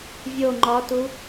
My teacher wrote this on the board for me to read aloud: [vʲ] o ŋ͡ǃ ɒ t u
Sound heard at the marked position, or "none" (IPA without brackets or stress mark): vʲ